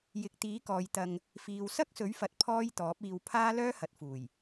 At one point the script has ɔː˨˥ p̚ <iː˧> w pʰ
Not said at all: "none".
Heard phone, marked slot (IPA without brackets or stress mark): iː˧